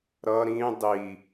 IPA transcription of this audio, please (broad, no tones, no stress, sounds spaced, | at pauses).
ɾ ʌ ɾ ĩ dˤ i